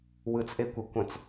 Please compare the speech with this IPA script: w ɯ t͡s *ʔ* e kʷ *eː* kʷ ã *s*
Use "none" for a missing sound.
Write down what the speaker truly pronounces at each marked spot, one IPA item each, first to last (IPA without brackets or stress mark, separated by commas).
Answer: ʔ, e, t͡s